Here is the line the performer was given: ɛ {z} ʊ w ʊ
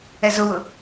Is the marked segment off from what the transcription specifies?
no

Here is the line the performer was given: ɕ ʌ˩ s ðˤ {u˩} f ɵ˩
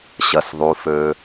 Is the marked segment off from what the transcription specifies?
no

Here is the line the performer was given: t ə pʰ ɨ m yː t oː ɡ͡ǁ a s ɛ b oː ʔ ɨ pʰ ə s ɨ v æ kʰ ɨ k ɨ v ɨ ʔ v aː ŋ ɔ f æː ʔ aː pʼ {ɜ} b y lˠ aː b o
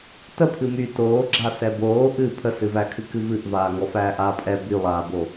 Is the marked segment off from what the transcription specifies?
yes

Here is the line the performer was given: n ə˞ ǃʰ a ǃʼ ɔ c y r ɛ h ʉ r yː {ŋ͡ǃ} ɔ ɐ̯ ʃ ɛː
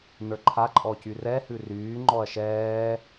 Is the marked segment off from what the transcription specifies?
no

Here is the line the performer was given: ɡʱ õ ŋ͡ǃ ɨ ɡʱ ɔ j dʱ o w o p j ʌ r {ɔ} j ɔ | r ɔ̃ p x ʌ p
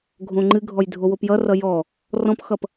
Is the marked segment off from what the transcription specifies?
yes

